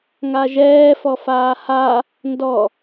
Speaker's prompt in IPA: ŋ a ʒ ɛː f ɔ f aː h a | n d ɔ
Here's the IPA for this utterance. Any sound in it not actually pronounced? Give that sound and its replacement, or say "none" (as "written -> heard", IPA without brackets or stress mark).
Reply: none